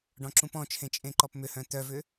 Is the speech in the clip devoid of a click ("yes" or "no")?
no